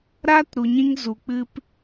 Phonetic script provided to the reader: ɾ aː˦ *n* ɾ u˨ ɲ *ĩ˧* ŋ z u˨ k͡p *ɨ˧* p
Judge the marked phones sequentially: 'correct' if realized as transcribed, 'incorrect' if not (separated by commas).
incorrect, correct, correct